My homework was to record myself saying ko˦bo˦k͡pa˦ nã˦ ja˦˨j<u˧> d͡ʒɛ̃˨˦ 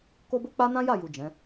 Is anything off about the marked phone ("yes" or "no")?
yes